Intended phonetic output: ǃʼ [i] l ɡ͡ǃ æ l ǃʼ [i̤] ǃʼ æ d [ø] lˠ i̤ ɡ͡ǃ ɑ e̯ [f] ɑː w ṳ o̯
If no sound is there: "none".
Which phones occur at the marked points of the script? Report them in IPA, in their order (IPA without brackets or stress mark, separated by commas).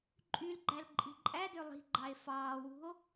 y, i̤, ø, f